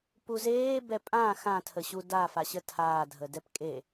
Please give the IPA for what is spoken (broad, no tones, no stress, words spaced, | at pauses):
puzeː bɛpʼã xã tʰəɕuda faɕətʰaː dʱədɛpkʼe